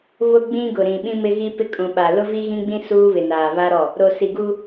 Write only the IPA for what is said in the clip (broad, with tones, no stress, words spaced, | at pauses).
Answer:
βʊ˦ɡ͡bĩ˦ɡʊ˨ ɾĩ˨ɓĩ˦mɪ˦ ɣi˦pɪ˦kʼũ˨ɓa˨ lʊ˦vi˦ɣĩ˦ɡ͡bĩ˦ suː˦βɪ˨ naː˨βa˦ɾɔ˦˨ | ɾo˨si˨ ɡu˦